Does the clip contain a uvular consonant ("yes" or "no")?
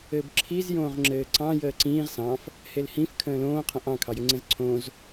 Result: yes